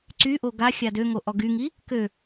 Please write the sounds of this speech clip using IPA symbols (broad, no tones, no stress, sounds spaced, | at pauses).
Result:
ǀ y ʔ o ɡ a xʲ a d ø ŋ o ʔ ɔ ɡ y ŋ i | k ø